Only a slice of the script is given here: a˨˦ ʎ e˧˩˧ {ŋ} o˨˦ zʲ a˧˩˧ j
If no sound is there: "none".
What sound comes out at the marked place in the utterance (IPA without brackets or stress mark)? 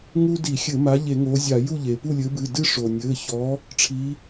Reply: ŋ